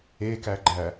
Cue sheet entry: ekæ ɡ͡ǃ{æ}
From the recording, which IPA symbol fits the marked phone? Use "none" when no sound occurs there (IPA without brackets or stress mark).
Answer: æ